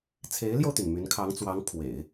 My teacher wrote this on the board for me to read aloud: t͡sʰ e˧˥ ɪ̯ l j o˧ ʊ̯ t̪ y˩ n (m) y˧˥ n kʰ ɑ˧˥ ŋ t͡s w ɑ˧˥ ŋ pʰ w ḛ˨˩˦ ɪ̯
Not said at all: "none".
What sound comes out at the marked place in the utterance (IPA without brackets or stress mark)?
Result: m